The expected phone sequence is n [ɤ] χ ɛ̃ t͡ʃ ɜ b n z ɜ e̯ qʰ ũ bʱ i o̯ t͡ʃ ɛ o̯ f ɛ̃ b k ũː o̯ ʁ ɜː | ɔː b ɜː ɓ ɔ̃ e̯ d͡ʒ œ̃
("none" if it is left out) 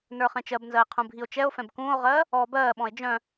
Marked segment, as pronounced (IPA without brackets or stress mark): ə˞